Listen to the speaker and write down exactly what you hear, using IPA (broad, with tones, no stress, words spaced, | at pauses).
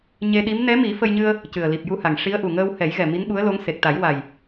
ɲe˧ɗi˧˥m nɛ˧˥mi˨˩˦ fə˧jɲɨ˧ə̯ | cɨ˨˩ə̯li˨˩p̚ju˧ha˨˩ŋ ʂi˧˥ə̯ʔu˨˩ ŋəː˧whɛ˨˩˦jɣɛ˨˩ mi˧˥nɓu˧˥ə̯lo˧˥ŋ se˨˩k̚t̪a˨˩˦jwa˨˩j